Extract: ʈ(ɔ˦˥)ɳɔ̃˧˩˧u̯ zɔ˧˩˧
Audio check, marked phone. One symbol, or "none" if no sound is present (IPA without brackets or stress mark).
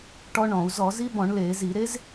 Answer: ɔ˦˥